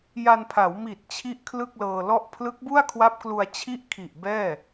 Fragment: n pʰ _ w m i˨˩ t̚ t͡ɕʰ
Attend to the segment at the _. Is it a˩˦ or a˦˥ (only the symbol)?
a˩˦